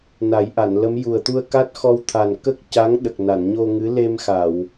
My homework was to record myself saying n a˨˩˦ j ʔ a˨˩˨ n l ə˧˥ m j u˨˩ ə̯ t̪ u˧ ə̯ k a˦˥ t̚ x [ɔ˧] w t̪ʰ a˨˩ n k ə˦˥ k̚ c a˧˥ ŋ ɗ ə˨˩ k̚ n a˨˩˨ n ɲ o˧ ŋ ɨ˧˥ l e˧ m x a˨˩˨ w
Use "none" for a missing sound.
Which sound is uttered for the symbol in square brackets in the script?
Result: ɔ˧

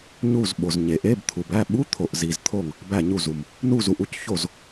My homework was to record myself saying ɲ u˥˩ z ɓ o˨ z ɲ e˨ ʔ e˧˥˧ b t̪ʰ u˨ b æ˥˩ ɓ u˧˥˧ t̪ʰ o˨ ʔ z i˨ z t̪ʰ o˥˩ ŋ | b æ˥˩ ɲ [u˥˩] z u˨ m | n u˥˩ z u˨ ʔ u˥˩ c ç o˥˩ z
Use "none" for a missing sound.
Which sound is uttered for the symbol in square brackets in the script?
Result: u˥˩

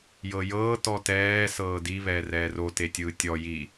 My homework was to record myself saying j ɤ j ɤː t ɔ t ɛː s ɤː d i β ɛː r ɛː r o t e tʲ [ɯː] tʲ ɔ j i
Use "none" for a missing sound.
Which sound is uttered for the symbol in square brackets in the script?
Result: ɯː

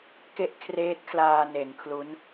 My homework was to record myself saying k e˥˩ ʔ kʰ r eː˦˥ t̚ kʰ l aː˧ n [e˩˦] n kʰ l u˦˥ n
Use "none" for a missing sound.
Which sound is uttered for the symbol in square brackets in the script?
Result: e˩˦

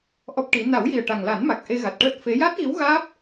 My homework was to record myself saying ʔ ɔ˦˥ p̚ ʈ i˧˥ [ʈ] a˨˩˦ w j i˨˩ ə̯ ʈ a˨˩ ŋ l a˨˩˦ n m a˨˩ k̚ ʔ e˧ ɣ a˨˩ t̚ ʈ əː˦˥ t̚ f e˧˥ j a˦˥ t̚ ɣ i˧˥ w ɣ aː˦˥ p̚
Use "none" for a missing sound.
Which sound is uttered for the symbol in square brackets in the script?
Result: n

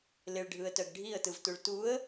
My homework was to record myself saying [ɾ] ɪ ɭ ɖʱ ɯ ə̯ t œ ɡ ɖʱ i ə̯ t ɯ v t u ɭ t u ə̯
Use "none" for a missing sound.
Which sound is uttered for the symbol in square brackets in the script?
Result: l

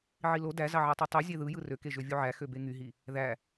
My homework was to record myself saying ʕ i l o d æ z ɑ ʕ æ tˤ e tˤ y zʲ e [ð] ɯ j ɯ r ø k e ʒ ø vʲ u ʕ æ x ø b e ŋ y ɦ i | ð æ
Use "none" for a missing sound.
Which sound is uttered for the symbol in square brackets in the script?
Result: ð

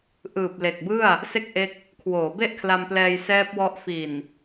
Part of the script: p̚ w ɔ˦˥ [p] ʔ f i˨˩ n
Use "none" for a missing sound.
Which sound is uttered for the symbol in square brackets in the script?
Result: none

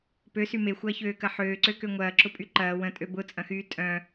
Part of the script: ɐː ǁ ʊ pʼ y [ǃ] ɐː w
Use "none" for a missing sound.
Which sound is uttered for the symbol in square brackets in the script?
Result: ǃ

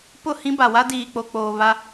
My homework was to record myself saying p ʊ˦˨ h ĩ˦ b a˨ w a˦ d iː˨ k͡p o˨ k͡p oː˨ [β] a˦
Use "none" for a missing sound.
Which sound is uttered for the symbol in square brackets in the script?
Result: β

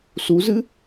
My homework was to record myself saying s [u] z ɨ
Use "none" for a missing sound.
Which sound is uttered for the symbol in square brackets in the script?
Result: u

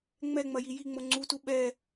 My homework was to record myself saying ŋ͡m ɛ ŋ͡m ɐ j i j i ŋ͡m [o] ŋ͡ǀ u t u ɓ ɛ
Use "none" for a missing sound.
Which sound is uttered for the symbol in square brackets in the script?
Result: o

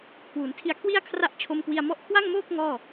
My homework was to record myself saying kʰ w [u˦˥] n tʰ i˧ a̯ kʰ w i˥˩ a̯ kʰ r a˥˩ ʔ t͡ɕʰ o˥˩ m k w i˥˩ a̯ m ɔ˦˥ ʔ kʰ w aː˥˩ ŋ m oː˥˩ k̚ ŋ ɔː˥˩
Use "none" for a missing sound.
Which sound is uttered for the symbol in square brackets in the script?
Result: u˩˦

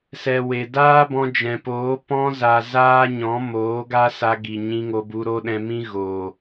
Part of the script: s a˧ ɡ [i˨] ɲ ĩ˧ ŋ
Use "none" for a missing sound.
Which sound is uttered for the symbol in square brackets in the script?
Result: i˨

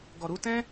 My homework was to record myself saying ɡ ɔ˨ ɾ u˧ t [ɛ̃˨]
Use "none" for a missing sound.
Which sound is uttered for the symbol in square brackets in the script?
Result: ɛ̃˦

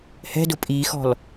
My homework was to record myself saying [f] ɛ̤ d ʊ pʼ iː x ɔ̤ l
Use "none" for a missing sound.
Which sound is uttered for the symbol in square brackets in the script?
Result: h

